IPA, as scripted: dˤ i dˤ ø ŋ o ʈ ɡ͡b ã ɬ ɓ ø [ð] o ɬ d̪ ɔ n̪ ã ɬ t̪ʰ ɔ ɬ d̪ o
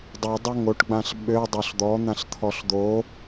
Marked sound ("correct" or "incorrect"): incorrect